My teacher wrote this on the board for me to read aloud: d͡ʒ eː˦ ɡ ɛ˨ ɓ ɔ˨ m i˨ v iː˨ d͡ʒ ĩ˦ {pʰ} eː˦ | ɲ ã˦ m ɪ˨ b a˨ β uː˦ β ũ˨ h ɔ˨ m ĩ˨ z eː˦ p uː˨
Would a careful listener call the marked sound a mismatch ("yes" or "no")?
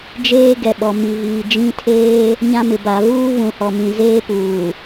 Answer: yes